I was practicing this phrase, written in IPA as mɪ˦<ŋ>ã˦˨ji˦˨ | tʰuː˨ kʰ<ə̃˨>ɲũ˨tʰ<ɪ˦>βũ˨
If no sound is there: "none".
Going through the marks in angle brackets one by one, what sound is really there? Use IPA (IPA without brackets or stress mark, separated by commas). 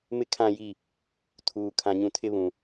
kʰ, ã˨, ɪ˦